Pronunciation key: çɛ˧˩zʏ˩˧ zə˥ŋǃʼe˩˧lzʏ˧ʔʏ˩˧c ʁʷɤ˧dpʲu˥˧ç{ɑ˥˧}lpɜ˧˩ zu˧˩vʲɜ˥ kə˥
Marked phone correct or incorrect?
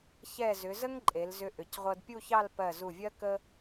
correct